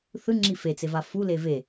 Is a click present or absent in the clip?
present